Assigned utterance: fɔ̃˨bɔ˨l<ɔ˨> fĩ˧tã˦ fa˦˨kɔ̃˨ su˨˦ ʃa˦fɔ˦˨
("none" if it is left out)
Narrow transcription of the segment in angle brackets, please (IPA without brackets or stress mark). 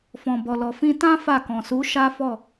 ɔ˨